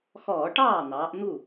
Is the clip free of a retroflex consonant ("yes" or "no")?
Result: no